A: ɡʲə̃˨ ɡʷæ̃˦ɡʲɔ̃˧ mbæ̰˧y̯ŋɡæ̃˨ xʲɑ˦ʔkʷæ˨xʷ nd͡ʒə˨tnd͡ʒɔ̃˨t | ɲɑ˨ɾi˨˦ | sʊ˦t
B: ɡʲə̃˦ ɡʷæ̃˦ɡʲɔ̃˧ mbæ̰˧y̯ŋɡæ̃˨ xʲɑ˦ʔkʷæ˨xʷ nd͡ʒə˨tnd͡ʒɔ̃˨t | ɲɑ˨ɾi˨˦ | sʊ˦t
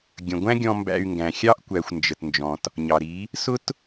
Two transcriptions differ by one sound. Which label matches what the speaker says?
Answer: A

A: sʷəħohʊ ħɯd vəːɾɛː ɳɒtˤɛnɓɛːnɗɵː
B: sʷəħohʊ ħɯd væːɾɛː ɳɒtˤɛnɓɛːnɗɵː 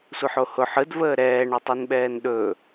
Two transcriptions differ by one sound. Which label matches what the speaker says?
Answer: A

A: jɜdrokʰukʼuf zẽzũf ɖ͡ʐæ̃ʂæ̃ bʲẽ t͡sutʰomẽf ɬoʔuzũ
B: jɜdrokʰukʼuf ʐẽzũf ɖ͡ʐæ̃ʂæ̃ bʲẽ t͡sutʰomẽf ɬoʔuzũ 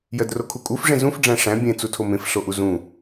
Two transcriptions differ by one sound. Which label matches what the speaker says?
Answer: B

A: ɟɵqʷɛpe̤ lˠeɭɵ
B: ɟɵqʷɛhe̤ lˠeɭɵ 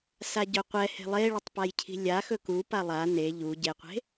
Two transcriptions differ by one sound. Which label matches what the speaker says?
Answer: B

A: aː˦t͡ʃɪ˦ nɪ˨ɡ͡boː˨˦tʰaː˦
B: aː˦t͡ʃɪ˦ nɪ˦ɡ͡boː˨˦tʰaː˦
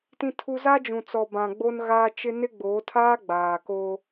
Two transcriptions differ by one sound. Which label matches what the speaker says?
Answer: B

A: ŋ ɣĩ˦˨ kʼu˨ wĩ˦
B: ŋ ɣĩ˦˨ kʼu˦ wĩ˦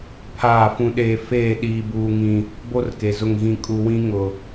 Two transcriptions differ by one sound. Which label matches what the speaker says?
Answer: B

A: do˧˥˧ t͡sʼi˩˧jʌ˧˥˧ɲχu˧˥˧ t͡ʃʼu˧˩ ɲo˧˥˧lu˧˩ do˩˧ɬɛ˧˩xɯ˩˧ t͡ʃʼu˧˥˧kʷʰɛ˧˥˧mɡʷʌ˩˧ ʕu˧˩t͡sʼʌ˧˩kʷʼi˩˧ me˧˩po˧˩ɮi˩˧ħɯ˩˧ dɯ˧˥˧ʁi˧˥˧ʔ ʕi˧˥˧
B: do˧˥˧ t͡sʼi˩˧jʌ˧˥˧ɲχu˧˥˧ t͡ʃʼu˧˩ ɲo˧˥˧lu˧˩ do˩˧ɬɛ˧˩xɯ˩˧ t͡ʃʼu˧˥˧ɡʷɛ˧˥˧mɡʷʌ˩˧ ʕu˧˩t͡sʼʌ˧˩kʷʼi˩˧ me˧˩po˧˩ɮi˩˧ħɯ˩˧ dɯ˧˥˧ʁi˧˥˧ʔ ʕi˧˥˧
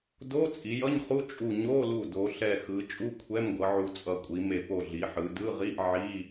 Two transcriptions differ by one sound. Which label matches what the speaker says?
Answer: A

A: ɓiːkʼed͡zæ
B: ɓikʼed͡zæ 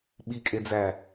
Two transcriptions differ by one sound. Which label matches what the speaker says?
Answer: B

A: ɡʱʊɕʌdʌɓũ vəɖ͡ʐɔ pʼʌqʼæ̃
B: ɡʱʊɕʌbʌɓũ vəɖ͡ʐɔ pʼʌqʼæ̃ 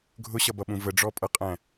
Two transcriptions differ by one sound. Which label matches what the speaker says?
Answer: B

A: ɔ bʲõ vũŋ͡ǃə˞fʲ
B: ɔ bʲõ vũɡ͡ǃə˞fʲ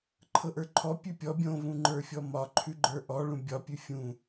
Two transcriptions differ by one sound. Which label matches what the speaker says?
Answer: A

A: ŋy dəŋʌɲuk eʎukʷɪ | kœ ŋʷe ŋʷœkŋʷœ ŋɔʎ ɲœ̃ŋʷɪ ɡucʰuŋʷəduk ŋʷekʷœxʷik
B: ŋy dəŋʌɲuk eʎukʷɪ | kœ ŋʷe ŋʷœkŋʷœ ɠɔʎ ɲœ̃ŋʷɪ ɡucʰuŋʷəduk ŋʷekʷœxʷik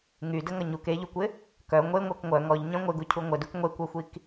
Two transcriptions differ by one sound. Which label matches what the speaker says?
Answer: A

